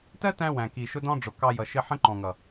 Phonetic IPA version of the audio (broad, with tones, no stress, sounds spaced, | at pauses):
t ɜ˦ t æ̃˧ w æ̃˨ k i˨ ʃ ʊ˦ d ɔ̃˦ ɖ͡ʐ ʊ˨ k ɑ˧ j ʌ˨ ʃ ɪ˧ ħ ə̃˦ ǃ ɔ̃˨ ŋ ʌ˨